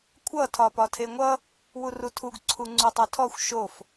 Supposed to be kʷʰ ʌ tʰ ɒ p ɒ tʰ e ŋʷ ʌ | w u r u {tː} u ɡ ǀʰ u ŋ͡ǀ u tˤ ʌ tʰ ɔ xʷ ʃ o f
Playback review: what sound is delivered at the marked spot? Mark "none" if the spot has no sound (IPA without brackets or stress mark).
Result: tʰ